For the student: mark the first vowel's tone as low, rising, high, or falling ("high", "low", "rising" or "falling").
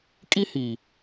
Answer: high